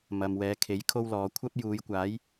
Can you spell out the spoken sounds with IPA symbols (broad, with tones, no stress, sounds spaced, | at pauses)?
m ɐ˨ m w ɛː˨˧ kʰ e˨˥ j kʰ o˥ w l ɔː˨˧ kʷʰ ɐ˥ p̚ j uː˨˧ j kʷ aː˨˥ j